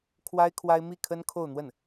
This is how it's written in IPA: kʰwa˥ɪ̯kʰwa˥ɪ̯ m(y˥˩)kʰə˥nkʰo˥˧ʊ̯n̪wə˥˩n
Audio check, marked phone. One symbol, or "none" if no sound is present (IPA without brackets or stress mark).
i˥˩